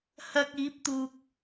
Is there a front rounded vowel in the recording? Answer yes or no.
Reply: no